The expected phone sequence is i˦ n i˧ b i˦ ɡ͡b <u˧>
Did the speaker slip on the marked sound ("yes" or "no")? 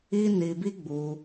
no